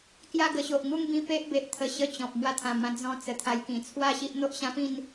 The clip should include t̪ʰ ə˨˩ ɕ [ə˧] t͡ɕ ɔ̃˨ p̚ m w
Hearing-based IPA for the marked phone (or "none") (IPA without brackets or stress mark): ə˧